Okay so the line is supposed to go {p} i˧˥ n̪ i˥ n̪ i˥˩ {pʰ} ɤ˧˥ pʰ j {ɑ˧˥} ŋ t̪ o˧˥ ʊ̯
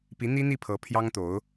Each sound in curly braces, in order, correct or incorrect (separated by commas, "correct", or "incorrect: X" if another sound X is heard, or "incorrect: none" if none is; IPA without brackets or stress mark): correct, correct, incorrect: ɑ˥